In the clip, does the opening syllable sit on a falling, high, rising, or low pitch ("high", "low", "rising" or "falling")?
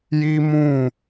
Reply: high